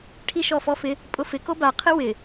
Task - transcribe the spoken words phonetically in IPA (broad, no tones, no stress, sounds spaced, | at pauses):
ʈʰ i ʃ ɔ f ɔ f ɪ | pʼ ʊ f ɪ k o b a qʰ ɪ w ɪ